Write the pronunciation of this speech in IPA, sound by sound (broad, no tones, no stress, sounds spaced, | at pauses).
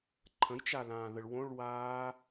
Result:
ǃʰ ə̃ j t͡ʃ a l ãː ð ə ɭ w õ ɭ w aː